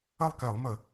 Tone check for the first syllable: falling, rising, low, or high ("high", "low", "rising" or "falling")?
falling